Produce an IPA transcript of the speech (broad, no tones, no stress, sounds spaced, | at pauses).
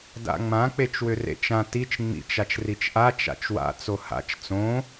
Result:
d a̰ ŋ͡m ã k͡p e t͡ʃ w ʏ r ḛ t͡ʃ ã t i t͡ʃ ŋ͡m ḭ t͡ʃ a t͡ʃ r i t͡ʃ ʔ a t͡ʃ a̰ t͡ʃ w a̰ t͡s o h a̰ t͡ʃ t͡s õ